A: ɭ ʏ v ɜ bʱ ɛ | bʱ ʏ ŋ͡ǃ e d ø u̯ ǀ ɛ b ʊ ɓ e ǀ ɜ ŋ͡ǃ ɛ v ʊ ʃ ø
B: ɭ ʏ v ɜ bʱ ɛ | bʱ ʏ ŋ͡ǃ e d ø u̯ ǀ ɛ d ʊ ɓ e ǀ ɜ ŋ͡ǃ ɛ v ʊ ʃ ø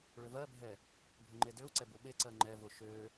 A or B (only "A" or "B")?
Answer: A